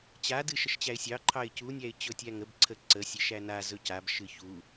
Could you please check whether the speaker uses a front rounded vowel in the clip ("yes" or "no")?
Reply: no